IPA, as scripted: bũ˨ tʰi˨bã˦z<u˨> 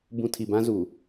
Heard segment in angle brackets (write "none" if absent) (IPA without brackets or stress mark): u˨